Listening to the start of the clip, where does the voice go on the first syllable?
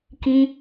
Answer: high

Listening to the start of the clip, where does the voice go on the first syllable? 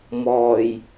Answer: low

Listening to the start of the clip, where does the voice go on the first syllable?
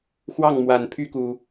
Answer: falling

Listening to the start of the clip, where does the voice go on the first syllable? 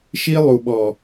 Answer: high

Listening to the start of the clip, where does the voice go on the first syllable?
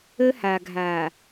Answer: high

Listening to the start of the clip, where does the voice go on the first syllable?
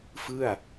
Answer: falling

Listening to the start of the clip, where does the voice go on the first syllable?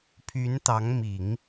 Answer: rising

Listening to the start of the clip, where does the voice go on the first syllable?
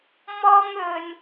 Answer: high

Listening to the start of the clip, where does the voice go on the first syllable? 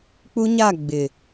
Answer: high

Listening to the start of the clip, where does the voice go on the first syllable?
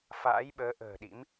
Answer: rising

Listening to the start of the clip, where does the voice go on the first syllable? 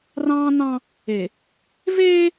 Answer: high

